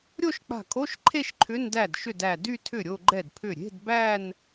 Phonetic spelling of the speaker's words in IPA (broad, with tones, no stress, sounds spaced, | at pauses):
ɾʲ o˥˧ ʃ k͡p a̤˧˩ kʰ o˧˥˧ ʃ ǃʰ e˥˧ ʃ ǃʰ ʏ˧˥˧ n d æ˥˩ d ʃ ʏ˥˩ d æ˧˩ d y˥˧ tʰ ʏ˥˩ ɾʲ o˥˧ ɡ͡ǃ ɛ˥˩ d pʰ ʏ˥˩ ɾʲ e̤˧˥˧ d b æ˥˧ n